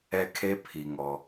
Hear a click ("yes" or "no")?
no